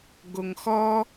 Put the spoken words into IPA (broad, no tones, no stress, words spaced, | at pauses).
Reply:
ɡoŋxɔ